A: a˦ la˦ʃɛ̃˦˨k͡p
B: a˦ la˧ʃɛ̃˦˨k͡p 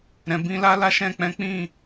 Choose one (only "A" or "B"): A